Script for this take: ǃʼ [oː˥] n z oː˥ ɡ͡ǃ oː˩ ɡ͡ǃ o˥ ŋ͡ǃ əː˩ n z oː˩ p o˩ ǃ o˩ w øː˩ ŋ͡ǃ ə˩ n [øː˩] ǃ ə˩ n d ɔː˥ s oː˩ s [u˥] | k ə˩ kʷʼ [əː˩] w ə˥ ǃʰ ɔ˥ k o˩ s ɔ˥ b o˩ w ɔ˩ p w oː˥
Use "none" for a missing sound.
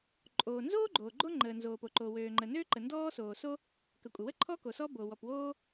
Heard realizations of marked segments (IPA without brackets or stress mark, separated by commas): oː˩, øː˥, o˥, ə˩